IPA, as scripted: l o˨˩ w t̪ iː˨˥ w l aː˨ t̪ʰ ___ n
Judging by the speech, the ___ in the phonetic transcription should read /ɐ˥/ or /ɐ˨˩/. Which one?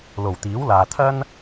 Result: ɐ˥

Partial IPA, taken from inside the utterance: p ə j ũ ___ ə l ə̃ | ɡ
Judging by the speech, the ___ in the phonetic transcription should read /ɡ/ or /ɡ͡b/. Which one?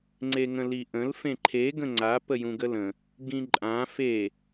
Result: ɡ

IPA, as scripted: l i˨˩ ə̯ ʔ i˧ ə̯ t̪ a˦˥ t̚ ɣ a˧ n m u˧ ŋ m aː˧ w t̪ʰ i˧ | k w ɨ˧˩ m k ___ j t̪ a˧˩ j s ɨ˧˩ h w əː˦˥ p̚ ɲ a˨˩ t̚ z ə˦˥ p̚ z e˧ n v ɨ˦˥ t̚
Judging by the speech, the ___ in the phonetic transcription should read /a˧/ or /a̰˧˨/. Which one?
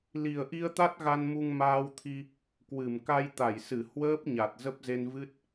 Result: a˧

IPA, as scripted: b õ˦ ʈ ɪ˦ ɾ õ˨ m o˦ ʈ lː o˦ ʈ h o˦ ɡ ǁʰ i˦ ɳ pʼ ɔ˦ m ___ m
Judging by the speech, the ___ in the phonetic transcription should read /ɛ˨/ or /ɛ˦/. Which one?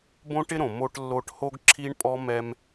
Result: ɛ˦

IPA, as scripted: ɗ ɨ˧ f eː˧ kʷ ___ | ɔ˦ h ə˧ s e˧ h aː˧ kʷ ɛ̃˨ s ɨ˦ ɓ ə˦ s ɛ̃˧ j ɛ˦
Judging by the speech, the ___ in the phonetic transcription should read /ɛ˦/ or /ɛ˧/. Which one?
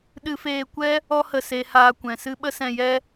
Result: ɛ˦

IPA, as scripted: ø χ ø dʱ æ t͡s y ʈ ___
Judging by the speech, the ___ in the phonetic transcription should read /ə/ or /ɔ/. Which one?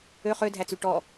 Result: ɔ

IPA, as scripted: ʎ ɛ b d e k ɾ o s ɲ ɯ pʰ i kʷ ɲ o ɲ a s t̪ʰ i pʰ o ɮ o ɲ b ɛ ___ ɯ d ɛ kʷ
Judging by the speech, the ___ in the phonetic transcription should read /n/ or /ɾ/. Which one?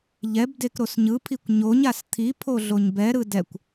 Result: ɾ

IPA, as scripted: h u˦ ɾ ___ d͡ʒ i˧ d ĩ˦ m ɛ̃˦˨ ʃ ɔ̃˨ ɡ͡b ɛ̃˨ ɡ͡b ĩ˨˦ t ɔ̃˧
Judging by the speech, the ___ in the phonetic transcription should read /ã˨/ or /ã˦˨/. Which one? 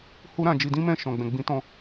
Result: ã˦˨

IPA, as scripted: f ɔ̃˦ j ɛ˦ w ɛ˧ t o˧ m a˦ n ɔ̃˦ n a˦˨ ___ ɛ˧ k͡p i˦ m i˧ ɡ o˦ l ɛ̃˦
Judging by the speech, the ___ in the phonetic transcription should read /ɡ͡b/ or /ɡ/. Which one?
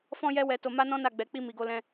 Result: ɡ͡b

